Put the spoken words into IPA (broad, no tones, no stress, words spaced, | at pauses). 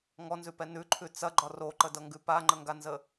ŋɔnzʉpɛ nʉǃʰʉ t͡sɐɡ͡ǃɒ roǃədʌŋɡʉ paŋ͡ǃəŋɡanzə